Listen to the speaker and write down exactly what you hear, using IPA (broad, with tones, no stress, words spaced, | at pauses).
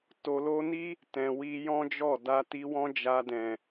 to˨lo˧ni˦ | tɛ̃˨wi˧jɔ̃˦d͡ʒɔ˦˨ da˧ti˧wɔ̃˦ d͡ʒa˧dɛ̃˨